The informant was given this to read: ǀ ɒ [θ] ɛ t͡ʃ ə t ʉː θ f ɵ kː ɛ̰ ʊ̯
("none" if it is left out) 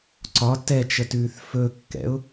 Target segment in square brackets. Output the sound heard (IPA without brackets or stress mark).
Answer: t